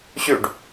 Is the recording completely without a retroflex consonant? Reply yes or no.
no